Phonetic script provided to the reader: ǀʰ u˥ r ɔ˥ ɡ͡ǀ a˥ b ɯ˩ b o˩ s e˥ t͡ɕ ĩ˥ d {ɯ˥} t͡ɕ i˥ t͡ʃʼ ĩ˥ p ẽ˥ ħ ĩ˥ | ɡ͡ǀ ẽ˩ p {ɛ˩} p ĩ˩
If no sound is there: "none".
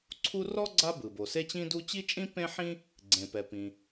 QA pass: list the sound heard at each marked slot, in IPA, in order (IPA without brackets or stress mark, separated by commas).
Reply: u˥, ɛ˩